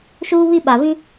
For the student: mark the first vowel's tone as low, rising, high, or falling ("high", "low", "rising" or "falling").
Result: high